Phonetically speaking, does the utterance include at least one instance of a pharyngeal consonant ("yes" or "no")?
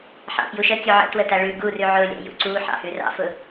yes